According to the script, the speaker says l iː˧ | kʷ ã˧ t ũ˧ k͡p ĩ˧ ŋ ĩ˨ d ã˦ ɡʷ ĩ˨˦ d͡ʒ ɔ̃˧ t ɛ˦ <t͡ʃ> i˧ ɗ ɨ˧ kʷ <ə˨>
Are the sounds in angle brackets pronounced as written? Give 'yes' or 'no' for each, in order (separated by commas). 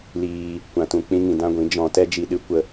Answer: no, no